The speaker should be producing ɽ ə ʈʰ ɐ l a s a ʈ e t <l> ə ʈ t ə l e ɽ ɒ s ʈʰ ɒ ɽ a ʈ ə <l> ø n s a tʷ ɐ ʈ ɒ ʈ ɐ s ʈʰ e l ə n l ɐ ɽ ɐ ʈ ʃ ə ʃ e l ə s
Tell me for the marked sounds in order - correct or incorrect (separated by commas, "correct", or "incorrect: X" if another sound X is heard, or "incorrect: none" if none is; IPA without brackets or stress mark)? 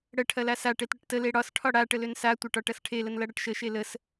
incorrect: ɽ, correct